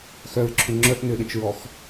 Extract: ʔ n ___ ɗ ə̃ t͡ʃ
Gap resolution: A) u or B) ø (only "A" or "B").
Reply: B